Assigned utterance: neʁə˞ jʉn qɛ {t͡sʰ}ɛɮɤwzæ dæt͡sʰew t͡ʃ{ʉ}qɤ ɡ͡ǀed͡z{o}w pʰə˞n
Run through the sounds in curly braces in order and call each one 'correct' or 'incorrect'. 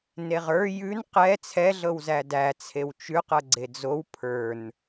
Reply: correct, correct, correct

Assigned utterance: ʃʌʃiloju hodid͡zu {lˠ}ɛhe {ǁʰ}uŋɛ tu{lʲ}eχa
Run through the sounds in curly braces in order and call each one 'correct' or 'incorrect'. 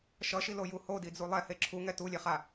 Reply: correct, correct, correct

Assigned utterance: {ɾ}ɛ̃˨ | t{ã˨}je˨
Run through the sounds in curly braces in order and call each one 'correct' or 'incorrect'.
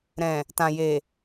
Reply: correct, correct

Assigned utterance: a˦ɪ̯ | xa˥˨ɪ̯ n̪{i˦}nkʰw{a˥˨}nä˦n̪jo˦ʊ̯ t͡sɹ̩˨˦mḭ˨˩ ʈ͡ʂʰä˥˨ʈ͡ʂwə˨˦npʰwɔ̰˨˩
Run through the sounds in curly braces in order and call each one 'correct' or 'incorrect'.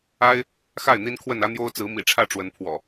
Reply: correct, incorrect

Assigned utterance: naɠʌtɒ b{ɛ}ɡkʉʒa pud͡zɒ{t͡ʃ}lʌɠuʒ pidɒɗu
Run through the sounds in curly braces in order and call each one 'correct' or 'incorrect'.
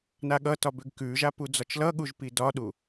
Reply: incorrect, correct

